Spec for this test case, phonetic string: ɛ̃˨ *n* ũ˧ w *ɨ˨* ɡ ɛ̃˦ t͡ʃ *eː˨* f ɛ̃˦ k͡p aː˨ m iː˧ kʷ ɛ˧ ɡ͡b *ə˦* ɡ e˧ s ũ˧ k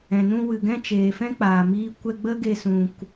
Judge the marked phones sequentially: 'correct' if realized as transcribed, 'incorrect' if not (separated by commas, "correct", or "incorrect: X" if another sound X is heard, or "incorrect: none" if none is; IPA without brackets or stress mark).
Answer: correct, correct, correct, correct